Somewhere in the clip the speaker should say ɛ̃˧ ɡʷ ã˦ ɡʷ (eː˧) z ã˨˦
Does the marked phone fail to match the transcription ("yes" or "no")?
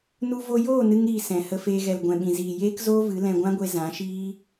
yes